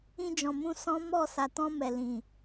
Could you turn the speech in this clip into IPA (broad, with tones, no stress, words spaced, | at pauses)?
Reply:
ĩ˧d͡ʒɔ̃˨mũ˧ sɔ̃˦mɔ˦˨ sa˨tɔ̃˧ mɛ˨lĩ˨